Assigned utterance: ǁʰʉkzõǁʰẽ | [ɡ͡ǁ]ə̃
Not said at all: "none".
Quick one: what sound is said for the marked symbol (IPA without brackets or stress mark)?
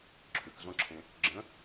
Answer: ɡ͡ǁ